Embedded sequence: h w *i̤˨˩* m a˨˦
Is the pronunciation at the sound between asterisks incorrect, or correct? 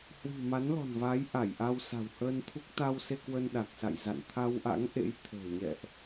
correct